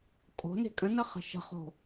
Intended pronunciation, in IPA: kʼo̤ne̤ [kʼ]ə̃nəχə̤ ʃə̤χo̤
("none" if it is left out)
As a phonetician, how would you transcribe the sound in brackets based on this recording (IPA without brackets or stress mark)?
kʼ